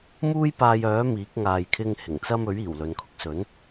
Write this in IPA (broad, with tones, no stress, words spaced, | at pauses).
muː˥j paː˧jœː˨˥ miː˨˥k̚ŋaː˧jkʰɪ˥ŋhɪ˨˩ŋ t͡sɐ˥mɵ˨˥ɥiː˨˩w lɵ˨n kʰʊ˧k̚sɵ˨˥n